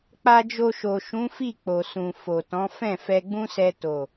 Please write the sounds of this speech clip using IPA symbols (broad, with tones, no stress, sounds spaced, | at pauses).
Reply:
k͡p a˧ d͡ʒ o˧ ʃ o˨ ʃ ũ˨˦ f i˦˨ k͡p o˨ s ũ˨ f o˨ t ɔ̃˨˦ f ɛ̃˦˨ f ɛ˧ ɡ͡b ũ˦ s ɛ˧ t o˨